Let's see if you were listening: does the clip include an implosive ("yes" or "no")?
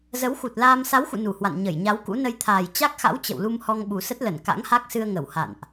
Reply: yes